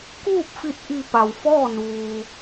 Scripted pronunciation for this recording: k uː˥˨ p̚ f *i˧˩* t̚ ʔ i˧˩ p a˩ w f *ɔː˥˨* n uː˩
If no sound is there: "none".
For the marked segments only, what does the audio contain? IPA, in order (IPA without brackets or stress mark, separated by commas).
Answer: i˧˩, ɔː˥˨